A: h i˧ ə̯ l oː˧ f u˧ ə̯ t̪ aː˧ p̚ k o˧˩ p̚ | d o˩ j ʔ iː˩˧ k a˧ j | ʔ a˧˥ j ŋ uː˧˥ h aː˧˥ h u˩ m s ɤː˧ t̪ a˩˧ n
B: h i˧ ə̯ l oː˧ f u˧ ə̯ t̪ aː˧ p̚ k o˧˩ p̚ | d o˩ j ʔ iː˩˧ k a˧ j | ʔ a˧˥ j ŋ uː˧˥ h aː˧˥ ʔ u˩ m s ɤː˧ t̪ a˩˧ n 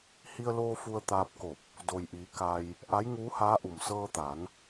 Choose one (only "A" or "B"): B